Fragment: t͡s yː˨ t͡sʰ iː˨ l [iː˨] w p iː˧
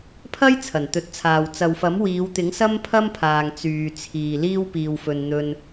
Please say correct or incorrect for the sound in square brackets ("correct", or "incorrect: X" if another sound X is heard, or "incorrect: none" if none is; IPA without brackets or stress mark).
incorrect: iː˥